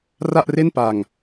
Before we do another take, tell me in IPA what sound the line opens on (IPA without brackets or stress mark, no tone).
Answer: r